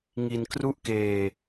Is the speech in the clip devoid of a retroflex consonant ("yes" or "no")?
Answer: yes